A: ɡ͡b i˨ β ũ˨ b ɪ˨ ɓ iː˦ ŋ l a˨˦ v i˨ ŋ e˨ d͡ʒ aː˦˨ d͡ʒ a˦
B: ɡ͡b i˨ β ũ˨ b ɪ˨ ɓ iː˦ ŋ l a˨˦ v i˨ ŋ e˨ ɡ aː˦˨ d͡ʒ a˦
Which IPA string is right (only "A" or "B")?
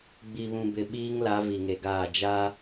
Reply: B